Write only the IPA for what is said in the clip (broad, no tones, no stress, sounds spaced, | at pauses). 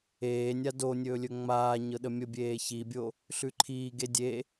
eː nʲ a d o nʲ ɵː lʲ ɵ ŋ͡m aː ɲ ɤ ɗ ə mʲ ə bʲ eː ç i bʲ o | ɬ ʉ ǃʰ iː ɡ e dʲ e